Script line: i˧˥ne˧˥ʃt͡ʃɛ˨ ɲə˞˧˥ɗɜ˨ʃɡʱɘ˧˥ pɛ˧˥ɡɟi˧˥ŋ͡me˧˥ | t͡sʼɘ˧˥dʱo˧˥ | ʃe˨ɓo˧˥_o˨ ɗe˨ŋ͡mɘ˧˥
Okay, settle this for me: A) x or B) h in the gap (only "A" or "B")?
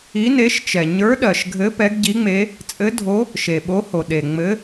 B